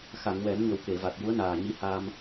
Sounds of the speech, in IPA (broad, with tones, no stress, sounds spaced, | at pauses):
x a˨˩˨ ŋ w ɛ˨˩˦ m ɲ ə˨˩ w k e˨˩˨ v a˨˩ t̚ j u˧˥ ə̯ n aː˨˩ ɲ i˧˥ h aː˧ m